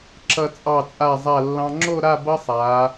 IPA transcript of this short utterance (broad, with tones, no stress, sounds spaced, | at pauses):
ǁ ʌ˧ t͡sʼ ɑ˧˩ t͡sʼ a˧˩ zˤ a˧˩ lː ɑ̃˧ ŋ͡ǁ o˥˧ ɾ a˥˧ b ʌ˥ sˤ aː˩˧